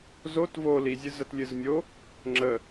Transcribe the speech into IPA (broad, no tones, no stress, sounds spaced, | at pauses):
z o t v o l i zʲ ɨ z ə t lʲ ɨ z mʲ o | ŋ͡ǁ ə